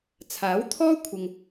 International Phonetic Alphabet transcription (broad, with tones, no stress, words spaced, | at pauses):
t͡sʰaː˨˥wt̪ʰɔː˥kʷʰɪ˨ŋ